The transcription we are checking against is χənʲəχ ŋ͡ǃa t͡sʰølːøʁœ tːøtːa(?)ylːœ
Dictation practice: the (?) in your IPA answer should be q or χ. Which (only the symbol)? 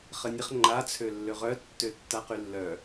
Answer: q